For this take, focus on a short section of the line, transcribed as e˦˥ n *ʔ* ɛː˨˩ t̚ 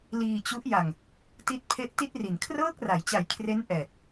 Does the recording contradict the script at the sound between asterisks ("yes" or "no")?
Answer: no